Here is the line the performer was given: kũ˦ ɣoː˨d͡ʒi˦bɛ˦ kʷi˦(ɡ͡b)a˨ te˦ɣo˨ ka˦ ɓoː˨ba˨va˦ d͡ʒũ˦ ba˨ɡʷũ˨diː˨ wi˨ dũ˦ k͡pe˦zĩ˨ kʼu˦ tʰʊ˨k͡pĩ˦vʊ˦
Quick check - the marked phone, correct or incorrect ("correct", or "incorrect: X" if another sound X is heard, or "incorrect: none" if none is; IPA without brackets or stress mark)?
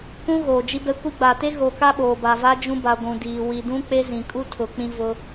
correct